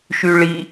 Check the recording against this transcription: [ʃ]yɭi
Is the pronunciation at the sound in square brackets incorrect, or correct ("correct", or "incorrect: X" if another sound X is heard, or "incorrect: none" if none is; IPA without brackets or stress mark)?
correct